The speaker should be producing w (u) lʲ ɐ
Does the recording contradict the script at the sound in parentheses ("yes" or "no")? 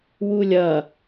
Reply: no